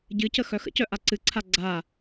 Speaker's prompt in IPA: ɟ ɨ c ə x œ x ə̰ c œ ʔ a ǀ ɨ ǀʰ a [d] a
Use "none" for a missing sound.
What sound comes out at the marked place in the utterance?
ɡ͡ǀ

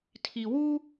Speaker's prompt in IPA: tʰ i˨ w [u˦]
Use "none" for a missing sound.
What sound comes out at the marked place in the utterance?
u˦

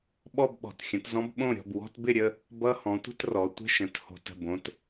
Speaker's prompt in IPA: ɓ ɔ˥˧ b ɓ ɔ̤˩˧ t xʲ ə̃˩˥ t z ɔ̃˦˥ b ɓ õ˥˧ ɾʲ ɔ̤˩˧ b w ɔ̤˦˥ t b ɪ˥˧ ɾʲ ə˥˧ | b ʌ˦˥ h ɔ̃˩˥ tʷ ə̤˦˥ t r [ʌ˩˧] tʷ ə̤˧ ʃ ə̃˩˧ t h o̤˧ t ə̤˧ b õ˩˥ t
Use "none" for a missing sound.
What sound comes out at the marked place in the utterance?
ɔ˩˧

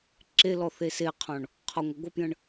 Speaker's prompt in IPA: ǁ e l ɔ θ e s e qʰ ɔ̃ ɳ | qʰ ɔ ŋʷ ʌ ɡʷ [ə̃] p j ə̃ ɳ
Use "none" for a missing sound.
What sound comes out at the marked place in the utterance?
ə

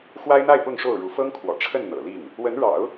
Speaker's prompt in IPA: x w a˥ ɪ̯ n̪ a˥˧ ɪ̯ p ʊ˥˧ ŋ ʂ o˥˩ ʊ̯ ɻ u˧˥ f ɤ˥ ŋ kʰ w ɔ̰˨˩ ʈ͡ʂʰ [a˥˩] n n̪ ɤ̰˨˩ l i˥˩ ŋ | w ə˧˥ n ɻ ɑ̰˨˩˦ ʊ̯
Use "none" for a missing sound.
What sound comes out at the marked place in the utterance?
ə˥˩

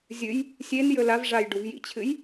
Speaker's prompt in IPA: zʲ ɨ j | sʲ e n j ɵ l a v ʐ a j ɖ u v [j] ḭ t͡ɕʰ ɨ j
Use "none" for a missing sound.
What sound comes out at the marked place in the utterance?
j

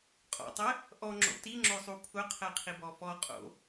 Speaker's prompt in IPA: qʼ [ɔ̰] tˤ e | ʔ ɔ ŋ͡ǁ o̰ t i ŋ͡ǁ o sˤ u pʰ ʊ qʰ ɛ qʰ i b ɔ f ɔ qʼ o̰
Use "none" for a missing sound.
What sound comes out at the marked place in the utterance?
ɔ̰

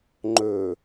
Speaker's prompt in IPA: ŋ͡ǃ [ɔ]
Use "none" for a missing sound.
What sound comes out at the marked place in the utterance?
ɵ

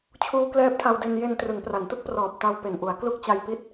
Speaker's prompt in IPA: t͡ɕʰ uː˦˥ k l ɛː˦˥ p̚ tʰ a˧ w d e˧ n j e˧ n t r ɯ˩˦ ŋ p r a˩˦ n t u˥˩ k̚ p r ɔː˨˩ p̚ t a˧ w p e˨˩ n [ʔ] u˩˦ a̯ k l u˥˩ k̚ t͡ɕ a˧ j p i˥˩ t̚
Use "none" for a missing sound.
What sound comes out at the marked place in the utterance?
ʔ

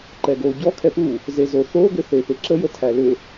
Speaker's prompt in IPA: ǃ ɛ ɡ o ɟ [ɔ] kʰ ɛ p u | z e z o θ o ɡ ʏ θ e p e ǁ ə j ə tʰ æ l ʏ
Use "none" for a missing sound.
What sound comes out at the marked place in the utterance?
ɔ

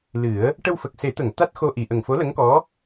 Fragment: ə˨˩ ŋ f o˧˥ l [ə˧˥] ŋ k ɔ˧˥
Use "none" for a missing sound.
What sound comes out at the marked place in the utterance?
ə˧˥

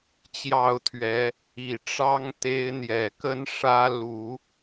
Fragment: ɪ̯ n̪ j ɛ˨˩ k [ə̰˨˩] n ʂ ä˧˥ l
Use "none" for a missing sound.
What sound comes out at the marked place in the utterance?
ə˥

